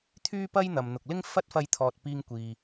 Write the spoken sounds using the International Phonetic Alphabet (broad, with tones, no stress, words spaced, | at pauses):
t̪ʰyː˥pɐ˥j n̪ɐ˨mn̪ʊ˨k̚lɪ˥ŋ fɐ˥t̚fɐ˧jt̪ʰɔː˨t̚ piː˧ŋkʷiː˨